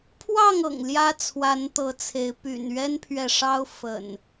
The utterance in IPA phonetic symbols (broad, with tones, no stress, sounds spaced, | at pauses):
pʰ w ɑ˥˨ ŋ ɤ̰˨˩ ŋ l j ä˦ t͡sʰ w a˨˦ n t̪ ɤ˨˦ t͡sʰ e˨˦ ɪ̯ p y̰˨˩ n ɥ ɛ˦ n pʰ ɥ ɛ˨ ʂ ɑ˦ ʊ̯ f ə̰˨˩ n